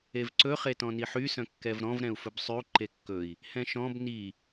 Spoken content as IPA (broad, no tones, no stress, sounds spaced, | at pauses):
e v ǀ ɵ χ e t ɔ̃ n i ħ y s œ̃ kː ɛ v ɾ ɔ̃ v ɾ ɛ̃ u̯ f ɵ b sˤ y u̯ ǃ e kː ɵ i̯ | h ɛ̃ ʃ ɔ̃ b n i